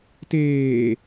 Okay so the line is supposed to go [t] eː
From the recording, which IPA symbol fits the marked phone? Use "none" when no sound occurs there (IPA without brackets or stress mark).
t